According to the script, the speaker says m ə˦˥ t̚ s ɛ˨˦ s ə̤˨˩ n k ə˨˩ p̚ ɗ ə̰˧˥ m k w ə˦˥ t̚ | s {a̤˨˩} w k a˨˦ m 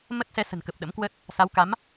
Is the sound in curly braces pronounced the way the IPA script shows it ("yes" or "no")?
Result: no